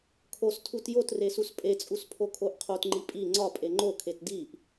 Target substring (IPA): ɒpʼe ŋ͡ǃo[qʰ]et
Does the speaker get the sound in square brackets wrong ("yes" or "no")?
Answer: yes